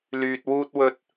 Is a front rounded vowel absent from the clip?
no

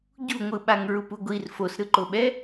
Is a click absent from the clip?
no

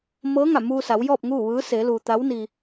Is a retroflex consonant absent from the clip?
yes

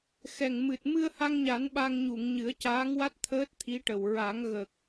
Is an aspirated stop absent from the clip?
no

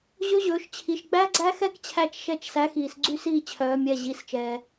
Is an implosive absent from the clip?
yes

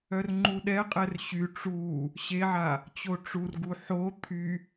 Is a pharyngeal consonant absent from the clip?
no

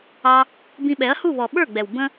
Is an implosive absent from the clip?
no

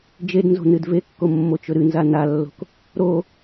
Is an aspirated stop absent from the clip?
yes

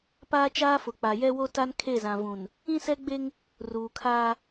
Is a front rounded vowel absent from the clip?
yes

